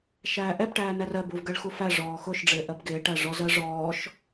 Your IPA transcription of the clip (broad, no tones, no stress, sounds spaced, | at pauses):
ʃ æː ʔ ɛ b ʈ æː n æ r ɜ b u v ɡ ɜ ɭ x u f æ ʐ ɔː x ʊ ʃ ɖ͡ʐ ɪː ʔ ɜ b ɡ ɪː ʈ æ ʐ ɔ z ɜ ʐ ɔː ʃ